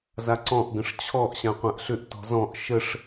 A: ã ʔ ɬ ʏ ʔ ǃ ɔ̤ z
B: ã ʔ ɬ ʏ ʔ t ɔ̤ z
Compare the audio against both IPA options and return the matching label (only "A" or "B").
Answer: B